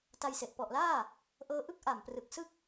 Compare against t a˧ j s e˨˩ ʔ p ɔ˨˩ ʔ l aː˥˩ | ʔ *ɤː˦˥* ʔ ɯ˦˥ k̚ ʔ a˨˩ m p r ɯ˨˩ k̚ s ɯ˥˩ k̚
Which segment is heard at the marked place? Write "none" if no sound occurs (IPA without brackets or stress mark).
ɤː˦˥